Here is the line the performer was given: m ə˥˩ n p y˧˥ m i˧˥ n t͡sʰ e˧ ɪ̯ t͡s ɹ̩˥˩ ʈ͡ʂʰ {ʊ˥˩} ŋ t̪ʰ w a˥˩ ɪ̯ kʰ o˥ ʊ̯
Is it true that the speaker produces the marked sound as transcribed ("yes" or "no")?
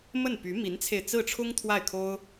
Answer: no